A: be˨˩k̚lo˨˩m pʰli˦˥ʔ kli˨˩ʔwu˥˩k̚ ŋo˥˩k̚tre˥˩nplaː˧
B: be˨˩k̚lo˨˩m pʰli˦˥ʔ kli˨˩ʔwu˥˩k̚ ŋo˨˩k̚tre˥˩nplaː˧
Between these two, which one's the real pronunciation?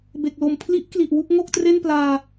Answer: A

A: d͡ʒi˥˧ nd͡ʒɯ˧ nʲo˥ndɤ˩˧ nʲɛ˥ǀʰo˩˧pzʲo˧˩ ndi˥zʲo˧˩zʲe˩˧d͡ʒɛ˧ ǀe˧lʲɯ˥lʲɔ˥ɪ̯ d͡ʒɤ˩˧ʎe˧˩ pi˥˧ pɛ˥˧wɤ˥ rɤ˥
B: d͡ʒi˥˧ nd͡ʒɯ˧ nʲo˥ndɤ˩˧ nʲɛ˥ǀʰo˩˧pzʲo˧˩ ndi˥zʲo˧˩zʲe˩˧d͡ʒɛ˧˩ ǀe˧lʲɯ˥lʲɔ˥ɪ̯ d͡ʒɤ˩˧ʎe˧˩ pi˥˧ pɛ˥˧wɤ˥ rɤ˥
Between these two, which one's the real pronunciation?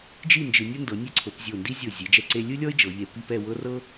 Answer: A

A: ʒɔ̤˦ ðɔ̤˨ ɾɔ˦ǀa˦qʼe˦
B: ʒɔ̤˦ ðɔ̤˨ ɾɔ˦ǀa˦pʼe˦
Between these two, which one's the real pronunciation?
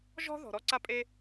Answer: B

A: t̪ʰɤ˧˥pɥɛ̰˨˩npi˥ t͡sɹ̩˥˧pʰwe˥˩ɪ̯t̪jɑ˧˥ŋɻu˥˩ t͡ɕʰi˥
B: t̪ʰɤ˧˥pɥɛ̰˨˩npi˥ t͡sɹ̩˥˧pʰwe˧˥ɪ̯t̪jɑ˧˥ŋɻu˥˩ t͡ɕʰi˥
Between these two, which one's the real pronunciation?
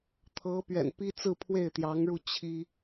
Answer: A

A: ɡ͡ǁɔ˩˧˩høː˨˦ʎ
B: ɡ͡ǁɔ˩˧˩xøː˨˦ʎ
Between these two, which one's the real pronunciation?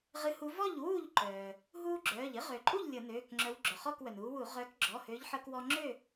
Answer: A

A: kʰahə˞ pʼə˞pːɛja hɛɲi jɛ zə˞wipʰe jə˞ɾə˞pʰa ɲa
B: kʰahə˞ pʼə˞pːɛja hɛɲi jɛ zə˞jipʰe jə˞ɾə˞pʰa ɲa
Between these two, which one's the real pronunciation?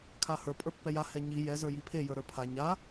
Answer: B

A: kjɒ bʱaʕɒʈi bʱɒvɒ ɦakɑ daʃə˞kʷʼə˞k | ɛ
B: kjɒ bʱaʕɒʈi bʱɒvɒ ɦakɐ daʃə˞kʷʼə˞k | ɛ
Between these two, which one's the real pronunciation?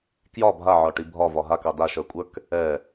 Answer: A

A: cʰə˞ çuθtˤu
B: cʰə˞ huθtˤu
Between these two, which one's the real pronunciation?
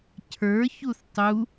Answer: A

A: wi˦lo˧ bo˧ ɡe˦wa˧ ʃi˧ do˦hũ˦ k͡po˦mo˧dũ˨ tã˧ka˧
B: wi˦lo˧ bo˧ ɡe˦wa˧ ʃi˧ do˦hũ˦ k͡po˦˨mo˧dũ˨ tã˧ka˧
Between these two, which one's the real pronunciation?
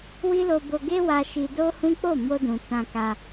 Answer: B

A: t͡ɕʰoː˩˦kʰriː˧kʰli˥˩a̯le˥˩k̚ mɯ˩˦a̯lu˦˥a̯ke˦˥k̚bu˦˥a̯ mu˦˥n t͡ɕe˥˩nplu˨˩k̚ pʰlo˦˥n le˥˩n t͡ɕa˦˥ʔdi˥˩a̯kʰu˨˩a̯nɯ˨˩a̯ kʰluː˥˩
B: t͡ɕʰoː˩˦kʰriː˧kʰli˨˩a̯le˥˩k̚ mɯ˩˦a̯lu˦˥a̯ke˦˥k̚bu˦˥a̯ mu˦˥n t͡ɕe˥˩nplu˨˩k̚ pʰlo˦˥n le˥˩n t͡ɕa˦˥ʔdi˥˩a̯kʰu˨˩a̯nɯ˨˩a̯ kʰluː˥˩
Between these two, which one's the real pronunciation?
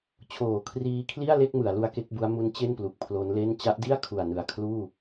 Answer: A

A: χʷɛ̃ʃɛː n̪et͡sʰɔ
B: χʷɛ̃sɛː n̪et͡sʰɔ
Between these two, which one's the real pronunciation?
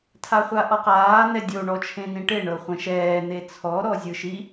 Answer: A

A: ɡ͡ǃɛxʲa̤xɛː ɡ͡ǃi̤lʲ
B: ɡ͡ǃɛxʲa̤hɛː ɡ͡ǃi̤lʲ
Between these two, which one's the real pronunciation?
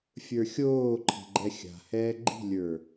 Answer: B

